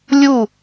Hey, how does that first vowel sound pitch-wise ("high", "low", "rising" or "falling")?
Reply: falling